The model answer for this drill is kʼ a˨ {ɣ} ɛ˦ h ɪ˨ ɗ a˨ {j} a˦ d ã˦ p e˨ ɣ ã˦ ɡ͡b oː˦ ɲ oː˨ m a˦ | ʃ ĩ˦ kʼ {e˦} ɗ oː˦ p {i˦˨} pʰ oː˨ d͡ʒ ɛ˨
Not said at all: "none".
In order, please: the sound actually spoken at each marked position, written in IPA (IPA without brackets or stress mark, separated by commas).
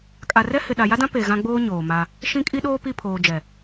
r, j, i˦, i˦˨